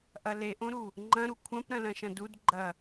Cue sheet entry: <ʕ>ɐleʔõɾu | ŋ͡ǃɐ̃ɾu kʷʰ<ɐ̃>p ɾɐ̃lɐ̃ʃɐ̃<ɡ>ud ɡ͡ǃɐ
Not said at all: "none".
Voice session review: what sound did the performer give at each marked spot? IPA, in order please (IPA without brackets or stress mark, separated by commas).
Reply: ʔ, ɐ̃, d